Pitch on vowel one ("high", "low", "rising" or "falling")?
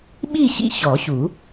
falling